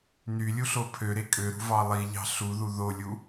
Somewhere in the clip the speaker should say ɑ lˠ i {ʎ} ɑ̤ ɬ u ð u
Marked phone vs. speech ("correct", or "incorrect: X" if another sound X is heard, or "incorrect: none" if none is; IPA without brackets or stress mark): correct